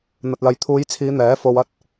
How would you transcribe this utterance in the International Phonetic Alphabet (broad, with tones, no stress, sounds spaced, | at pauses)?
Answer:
n̪ ɐ˧ t̚ l ɐ˧ j t̪ʰ uː˨˧ j t͡sʰ iː˨˧ n̪ ɛː˨˥ f o˧ w ɐ˥ t̚